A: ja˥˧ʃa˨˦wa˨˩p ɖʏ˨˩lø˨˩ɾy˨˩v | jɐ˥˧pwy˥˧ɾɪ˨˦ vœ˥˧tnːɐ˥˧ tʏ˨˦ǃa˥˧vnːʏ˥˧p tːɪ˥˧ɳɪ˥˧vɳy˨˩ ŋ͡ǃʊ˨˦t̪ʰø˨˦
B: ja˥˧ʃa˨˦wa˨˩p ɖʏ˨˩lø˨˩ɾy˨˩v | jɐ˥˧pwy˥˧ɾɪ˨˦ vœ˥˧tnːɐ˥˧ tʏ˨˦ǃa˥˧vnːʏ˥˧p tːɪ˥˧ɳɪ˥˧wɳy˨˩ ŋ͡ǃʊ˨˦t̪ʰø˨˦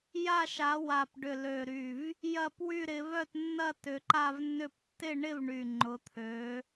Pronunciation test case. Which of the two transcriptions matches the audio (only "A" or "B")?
A